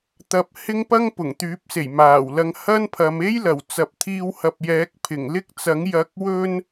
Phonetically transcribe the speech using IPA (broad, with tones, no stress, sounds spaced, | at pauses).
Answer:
t̪ ɐ˧ p̚ h ɪ˥ ŋ p ɐ˥ ŋ p ʊ˨˩ ŋ t̪ yː˨˥ p̚ s e˨˩ j m aː˨˩ w l ɐ˧ ŋ h ɐ˥ n pʰ ɐ˨˧ m e˥ j l ɐ˨˩ w t͡s ɐ˨ p̚ t̪ʰ iː˧ w h ɐ˨ p̚ j ɛː˨˥ k̚ pʰ ɪ˨˩ ŋ l ɪ˥ k̚ t͡s ɐ˨˥ ŋ j ɐ˨˥ k̚ w ɵ˧ n